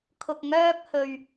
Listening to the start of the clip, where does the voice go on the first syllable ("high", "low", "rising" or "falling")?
low